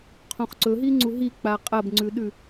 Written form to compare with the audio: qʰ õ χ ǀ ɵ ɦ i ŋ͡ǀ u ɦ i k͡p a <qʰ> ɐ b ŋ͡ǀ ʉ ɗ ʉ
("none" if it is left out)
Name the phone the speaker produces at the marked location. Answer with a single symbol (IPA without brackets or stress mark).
qʼ